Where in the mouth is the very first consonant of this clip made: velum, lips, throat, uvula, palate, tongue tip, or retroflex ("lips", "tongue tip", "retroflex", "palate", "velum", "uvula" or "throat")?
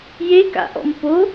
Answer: palate